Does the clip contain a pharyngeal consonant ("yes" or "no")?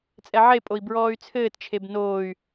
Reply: yes